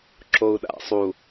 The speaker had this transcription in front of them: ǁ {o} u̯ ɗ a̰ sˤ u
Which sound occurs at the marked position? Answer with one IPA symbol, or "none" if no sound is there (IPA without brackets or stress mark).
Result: o